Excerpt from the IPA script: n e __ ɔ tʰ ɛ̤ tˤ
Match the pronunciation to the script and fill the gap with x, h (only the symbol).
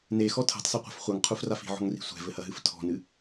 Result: x